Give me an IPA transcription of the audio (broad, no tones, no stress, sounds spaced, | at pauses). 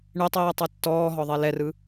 ɳ e tˤ iː tˤ e tː ɔː ɦ ɔ ðˤ e l ɛ r ɯ